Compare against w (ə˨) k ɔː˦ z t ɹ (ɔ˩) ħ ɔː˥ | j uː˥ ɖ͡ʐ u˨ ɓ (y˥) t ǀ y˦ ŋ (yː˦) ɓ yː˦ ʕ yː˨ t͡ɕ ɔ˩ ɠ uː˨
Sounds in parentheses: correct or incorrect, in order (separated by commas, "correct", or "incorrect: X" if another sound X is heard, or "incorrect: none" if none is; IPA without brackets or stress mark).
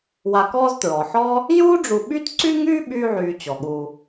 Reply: incorrect: a˨, correct, correct, correct